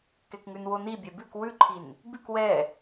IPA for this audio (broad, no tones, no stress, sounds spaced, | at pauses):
k ɛ k ŋ ʉ n w o n i bʲ ɛ b ʉ k w ʉ ǃʰ i n | b ʉ k w ɛ